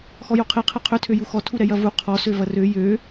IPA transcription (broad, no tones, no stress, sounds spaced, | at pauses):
x ɔ j o qʰ e qʰ ɛ qʰ ø tʰ ø j u x ɔ tʰ u ɾ ɛ j ɐ v u qʰ ɔ s ø v ɐ r ø j ø